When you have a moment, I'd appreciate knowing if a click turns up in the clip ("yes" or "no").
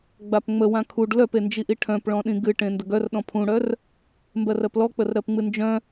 no